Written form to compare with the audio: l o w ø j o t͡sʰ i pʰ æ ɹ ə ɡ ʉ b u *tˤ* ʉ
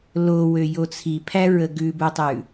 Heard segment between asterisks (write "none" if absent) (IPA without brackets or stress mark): tˤ